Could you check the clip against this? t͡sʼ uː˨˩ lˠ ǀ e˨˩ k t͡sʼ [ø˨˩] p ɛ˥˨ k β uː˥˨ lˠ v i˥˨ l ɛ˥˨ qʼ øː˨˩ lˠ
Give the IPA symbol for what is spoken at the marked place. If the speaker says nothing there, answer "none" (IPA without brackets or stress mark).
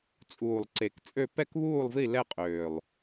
ø˥˨